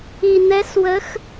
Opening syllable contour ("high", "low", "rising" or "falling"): low